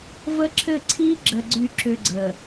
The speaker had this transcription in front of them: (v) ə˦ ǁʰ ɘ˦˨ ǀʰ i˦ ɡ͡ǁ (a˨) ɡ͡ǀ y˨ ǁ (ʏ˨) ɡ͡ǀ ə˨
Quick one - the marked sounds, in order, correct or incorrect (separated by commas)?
correct, incorrect, correct